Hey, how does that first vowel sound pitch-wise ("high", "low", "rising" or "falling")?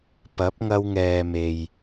rising